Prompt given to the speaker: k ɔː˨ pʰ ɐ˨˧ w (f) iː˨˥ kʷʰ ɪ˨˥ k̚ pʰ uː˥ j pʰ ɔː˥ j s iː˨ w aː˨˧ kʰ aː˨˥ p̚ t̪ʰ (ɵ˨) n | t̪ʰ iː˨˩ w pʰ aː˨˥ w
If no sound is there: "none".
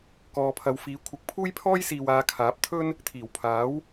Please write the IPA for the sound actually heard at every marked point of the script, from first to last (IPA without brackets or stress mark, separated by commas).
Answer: f, ɵ˥